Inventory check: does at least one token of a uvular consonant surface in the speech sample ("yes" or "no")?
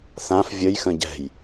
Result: no